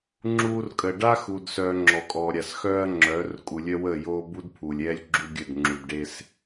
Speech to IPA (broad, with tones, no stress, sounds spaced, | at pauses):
ŋ͡ǁ uː˦ r kʼ ə˨ ɖ a˦ x u˨ d s œː˨ ŋ͡ǁ ɔ˨ kʼ ɔ˨ ɾʲ a˨ s x œː˦ ɐ̯ ŋ͡ǁ œː˨˦ r kʼ u˨ lʲ œ˦ w əː˦˨ j oː˦ b u˦ d pʰ u˨ lʲ ɛː˦ lʲ ɡ͡ǁ u˦ ɡʲ ə˦˨ d ŋ͡ǁ u˨ d ɖ e˦ s